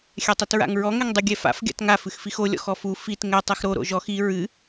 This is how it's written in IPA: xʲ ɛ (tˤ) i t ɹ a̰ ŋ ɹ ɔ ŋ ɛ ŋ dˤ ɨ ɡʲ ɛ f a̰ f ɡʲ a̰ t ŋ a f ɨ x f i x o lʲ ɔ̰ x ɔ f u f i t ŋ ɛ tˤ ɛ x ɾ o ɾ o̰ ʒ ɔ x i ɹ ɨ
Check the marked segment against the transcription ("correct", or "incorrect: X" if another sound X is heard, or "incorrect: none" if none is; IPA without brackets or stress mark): correct